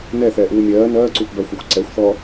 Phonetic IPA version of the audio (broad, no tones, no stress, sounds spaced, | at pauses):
n ɛ θ ɛː ʔ uː mʲ ɜː n ɜː ǀ u p b ɜ xʷ ɛ xʷ ǀ ɛ xʷ θ ɔ